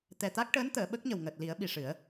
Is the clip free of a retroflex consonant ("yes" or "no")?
no